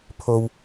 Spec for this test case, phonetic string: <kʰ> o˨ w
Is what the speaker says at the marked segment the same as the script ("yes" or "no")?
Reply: no